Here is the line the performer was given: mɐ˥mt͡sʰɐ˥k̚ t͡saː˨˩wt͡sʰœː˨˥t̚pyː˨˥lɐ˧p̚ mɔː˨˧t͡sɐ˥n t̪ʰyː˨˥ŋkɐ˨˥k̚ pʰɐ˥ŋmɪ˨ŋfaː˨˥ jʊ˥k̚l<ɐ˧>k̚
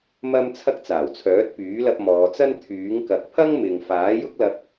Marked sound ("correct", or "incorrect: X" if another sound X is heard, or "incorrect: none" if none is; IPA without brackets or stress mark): correct